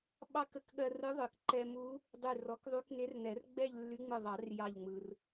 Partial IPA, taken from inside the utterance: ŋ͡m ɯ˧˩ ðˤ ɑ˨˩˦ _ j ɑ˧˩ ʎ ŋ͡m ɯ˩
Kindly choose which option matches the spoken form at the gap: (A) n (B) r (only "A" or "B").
B